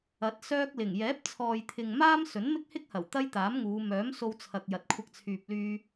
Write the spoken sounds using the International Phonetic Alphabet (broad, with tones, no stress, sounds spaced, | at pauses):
ɐ˨˥ t̚ s œː˥ k̚ l ɪ˨˩ ŋ j ɛː˨˥ p̚ t͡sʰ ɔː˨ j t̪ʰ ɪ˨ ŋ m aː˥ m s ɵ˨˥ n m ɪ˥ k̚ h ɪ˥ k̚ h ɐ˨˩ w t̪ ɐ˥ j t̪ aː˨˥ m ŋ uː˨˧ m œː˨˥ m s o˧ w t͡sʰ ɐ˨ k̚ j ɐ˨ t̚ kʷʰ ɐ˧ k̚ t͡sʰ yː˨ p̚ l yː˧